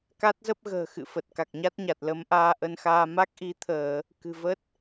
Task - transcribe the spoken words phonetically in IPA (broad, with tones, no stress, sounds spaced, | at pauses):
k a˦˥ t̚ z ə˦˥ p̚ ɣ ə̤ː˨˩ x ɨ̰˧˨ f ə˨˩ t̚ k a˨˩ k̚ ɲ a˦˥ t̚ ɲ a˨˩ t̚ l ə˨˦ m ʔ aː˧ ʔ ə˧ n x aː˧ m a˦˥ k̚ ʔ i˨˦ t̪ʰ əː˧˩˨ | k ɨ̤˨˩ v ə˦˥ t̚